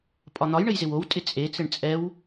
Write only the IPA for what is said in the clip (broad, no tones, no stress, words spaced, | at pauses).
pʼɒn̪ɒj ɳɘjzɪwow tʼɪt͡sʼe t͡sɘɳt͡sʼɛw